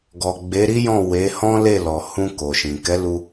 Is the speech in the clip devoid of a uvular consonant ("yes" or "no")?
yes